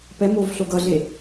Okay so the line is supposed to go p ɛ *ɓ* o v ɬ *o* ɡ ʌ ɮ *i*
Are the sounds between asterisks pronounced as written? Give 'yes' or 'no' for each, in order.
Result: no, yes, no

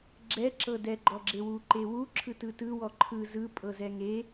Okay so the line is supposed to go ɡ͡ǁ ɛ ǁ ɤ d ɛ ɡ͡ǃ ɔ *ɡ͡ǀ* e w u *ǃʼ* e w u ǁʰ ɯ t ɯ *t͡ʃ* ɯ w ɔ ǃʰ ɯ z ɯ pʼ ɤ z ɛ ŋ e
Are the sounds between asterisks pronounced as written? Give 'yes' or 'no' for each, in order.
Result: no, no, no

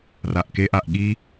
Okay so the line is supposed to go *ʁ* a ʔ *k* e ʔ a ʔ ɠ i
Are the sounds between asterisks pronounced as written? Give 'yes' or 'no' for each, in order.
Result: no, yes

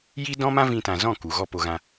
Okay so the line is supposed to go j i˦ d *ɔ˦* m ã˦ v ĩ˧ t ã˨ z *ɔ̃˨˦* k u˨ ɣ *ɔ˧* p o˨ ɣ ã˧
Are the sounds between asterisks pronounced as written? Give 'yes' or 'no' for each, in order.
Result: no, no, yes

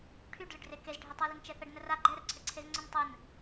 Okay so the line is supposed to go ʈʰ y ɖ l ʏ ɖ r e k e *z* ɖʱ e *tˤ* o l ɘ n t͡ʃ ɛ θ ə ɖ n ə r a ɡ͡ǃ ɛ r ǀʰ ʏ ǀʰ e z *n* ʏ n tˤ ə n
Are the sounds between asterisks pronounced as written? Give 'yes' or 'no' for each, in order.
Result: yes, yes, no

